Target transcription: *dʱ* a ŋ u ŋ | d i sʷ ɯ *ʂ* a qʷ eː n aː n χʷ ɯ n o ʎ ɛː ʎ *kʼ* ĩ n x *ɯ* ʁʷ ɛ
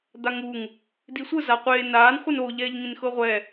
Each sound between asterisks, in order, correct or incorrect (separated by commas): incorrect, incorrect, incorrect, incorrect